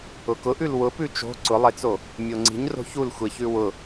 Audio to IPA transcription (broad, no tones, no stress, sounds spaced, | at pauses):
ʊ k ʊ ʔ ʉ l w ʊ p ʉ t͡ʃ o̤ ǀ ʊ lˠ e t͡s o | mʲ o ŋ͡ǀ i̤ ɲ r o̤ ç u l xʷ e ç ʉ w ʊ